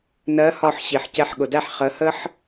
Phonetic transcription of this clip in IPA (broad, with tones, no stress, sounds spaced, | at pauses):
n ɜ˨˦ h ɒ˧˩ ħ ɕ i˩ ħ c ɛ˨˦ ħ ɠ ʊ˩ d æ˥˩ ħ χ ə˨˦ h ə˥ ħ